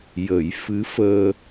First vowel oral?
yes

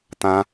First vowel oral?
no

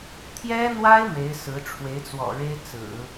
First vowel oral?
yes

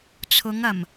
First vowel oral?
yes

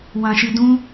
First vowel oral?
no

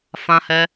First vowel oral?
no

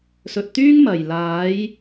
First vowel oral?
yes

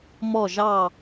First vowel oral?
yes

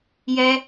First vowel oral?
yes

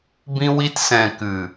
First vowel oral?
no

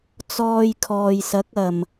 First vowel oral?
yes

